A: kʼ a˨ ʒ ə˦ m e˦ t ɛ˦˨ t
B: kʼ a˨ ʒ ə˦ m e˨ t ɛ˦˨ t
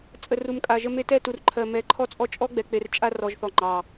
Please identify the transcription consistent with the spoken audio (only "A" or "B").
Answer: A